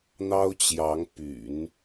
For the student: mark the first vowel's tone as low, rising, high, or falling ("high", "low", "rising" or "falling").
high